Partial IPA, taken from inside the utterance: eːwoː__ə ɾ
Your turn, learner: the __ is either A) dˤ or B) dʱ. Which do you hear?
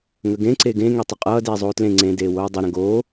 A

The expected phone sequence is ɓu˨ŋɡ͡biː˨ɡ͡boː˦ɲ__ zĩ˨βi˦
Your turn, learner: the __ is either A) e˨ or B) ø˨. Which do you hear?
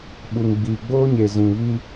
A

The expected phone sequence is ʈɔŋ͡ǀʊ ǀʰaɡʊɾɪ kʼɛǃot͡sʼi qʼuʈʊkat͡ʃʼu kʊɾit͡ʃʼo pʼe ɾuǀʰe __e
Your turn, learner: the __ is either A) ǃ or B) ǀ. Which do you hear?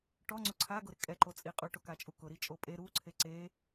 B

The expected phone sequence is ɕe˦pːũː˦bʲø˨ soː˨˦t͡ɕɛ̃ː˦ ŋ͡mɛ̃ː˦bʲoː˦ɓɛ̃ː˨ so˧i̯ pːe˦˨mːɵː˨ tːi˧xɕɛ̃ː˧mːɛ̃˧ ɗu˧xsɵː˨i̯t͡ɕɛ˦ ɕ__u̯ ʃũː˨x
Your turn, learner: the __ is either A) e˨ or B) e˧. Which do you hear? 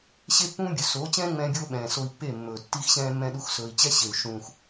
A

